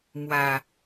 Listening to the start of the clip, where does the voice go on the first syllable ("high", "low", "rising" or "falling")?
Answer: low